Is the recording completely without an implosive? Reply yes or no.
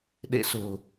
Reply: no